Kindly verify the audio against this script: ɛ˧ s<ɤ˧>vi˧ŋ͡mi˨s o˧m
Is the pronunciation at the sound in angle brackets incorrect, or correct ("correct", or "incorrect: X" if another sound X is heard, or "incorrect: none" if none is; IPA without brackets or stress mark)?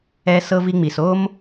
correct